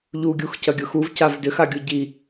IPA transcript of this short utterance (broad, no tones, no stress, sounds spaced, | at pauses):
ʎ u ɡʲ u x c ɐ ɡʲ ʊ x u v c a v d ʏ x a ɡʲ u ɟ i